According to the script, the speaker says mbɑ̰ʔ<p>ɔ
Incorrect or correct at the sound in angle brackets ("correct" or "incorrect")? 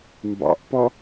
correct